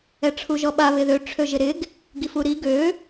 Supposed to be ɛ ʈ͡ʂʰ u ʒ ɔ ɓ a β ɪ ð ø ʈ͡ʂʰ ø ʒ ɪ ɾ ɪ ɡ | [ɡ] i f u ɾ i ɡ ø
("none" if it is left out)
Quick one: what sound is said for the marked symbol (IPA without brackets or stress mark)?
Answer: ɡ